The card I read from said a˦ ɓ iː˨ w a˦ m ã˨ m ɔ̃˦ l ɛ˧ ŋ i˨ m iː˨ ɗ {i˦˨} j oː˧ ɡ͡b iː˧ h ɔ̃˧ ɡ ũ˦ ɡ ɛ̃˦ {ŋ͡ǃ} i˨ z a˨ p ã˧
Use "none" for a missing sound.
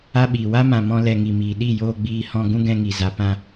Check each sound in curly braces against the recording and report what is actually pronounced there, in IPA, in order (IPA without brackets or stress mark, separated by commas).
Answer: i˦˨, ŋ